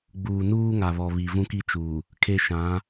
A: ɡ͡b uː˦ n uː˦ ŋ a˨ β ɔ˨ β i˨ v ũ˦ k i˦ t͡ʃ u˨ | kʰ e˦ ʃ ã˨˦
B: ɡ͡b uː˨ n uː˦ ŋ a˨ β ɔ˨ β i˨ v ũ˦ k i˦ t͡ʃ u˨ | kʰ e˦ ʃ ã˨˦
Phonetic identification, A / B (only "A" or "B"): B